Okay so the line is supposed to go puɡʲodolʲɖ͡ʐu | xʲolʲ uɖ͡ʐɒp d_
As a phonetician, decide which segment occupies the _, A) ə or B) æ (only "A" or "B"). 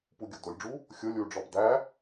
B